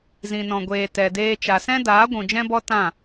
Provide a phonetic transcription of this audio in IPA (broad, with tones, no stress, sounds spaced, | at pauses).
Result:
z ĩ˨ n ɔ̃˨ ɡʷ eː˨ t ɛ˨ d eː˧ t͡ʃ a˨ s ɛ̃˦ d aː˨˦ ɡʷ ũ˨ d͡ʒ ɛ̃˦ b ɔ˦ t ã˦˨